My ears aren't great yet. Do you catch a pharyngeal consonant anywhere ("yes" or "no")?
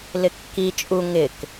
no